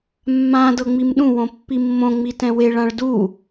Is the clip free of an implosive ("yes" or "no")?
no